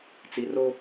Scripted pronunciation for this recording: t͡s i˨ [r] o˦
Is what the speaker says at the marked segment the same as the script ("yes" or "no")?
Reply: yes